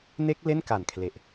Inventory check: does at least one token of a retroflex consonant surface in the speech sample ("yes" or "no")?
no